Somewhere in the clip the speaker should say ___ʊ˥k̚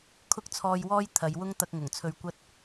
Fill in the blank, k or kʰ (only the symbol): kʰ